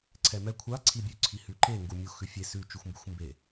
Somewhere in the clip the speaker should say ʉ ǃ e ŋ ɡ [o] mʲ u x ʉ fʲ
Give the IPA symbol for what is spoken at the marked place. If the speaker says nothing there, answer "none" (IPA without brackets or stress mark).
u